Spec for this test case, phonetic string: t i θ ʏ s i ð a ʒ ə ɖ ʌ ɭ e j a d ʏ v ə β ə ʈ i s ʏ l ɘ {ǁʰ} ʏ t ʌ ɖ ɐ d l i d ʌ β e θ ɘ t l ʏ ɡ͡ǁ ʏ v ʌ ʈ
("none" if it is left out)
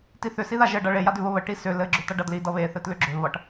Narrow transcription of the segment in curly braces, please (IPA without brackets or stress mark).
ɡ͡ǁ